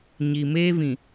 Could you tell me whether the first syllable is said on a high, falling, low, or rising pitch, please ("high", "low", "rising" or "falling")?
low